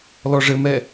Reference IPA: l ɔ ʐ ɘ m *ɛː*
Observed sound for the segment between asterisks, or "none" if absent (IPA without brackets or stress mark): ɛ